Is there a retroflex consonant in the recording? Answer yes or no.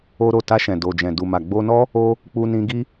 no